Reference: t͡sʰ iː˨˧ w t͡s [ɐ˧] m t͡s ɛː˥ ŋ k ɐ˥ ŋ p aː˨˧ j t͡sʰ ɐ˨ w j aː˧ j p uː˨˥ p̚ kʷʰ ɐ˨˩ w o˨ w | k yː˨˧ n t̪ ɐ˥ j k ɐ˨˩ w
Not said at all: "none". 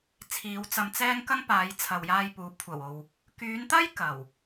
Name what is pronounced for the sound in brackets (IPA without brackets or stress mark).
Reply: ɐ˧